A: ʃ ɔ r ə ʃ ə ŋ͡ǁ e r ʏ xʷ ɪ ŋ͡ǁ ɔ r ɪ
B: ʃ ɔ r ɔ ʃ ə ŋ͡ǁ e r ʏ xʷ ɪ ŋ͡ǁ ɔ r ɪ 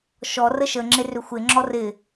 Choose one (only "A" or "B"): A